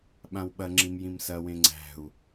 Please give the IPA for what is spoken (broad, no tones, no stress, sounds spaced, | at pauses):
ɓ ã w ɓ ɐ ŋ͡ǁ ĩ m j ĩ m s ɐ w ẽ ŋ͡ǀ æ̤ u̯